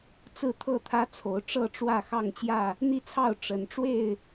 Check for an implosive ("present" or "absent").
absent